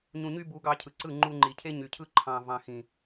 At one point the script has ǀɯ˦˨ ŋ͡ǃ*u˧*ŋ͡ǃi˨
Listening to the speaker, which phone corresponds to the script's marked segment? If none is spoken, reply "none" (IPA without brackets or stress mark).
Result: u˧